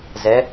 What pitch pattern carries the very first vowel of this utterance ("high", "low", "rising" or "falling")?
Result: rising